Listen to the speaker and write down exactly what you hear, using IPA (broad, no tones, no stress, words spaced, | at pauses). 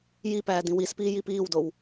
jipæː dĩwispiː jipiːwdow